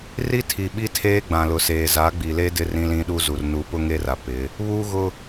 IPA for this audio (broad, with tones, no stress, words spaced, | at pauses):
ri˦tʰi˨ɓi˦ tʰeː˦ɡ͡bã˨lʊ˨seː˨ za˨˦ɡ͡bi˨le˦ dɪ˦ rĩ˦lĩ˦ɗu˦zu˨r nu˨˦pʊ˦ ŋe˦ra˨ pɪ˨˦ | βuː˦ɣʊ˦